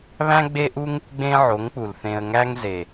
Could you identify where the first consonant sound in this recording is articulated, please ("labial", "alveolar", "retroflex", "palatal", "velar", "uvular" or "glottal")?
labial